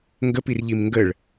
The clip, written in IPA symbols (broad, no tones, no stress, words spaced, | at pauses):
ŋɡəpir ʎimŋɡəɭ